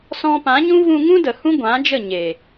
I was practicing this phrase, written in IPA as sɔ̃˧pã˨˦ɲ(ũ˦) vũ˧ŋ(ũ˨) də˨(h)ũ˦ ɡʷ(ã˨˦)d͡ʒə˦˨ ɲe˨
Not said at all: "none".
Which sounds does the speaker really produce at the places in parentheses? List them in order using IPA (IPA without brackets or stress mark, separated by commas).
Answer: ũ˦, ũ˦, h, ã˨˦